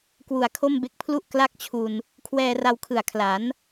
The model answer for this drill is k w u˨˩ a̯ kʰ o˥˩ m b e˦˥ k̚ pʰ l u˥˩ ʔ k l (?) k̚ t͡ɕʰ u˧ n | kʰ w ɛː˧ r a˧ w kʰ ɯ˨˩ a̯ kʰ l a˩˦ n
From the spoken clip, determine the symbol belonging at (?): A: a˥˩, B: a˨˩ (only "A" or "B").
A